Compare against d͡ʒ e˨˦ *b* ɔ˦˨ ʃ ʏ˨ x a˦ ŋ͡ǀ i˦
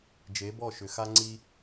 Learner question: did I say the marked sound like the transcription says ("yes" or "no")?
yes